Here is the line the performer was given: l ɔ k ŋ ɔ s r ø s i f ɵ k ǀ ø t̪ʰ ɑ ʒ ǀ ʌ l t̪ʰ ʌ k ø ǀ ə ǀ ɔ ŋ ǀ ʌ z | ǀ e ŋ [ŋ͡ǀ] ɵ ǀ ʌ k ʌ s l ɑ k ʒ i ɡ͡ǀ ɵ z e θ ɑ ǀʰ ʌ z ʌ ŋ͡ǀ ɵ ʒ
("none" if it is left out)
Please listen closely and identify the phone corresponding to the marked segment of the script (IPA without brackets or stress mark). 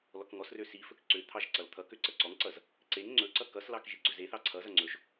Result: ŋ͡ǀ